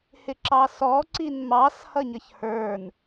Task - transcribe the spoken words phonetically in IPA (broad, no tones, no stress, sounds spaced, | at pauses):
h ɪ ǁ ɑ s ɔ ǀ i n m ɑ s h ʌ ɲ ʌ ç h ə˞ n